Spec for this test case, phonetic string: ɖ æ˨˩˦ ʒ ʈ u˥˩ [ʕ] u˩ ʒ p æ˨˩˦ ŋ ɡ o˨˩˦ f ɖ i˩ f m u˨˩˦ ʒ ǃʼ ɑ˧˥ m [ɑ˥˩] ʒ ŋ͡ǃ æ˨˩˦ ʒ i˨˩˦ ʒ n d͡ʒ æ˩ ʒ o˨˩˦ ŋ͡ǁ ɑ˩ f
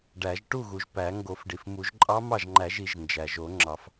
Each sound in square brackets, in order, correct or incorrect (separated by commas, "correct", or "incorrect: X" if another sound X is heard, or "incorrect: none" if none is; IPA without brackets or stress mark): incorrect: ɣ, correct